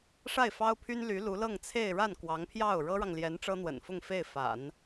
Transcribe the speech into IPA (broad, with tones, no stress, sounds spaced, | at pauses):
ʂ a˥˩ ɪ̯ f ɑ˥ ʊ̯ pʰ y˥ n l y˧˥ l u˧˥ l ɤ˥˧ ŋ t͡sʰ e˥˧ ɪ̯ ɻ a˥˩ n k w ɑ˧˥ ŋ pʰ j ɑ˥˩ ʊ̯ ɻ ɤ˥ ɻ ɑ˨ ŋ l j ɛ˧˥ n ʈ͡ʂ ɤ˥ n̪ w ə̰˨˩ n f ʊ˥˧ ŋ f e˥˩ ɪ̯ f a̰˨˩˦ n